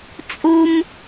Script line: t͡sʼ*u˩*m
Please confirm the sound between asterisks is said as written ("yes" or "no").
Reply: yes